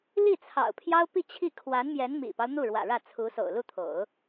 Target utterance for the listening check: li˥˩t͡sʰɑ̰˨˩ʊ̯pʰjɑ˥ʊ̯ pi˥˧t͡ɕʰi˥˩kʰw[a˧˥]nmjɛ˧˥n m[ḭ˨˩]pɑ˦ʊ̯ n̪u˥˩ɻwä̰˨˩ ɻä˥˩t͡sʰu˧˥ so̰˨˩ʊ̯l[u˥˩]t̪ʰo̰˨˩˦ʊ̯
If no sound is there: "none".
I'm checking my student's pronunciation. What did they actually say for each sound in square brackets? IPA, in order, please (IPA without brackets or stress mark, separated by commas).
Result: a˧˥, ḭ˨˩, u˥˩